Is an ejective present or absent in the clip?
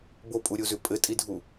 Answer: present